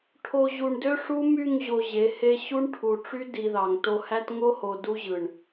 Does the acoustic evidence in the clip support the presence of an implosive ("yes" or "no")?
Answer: no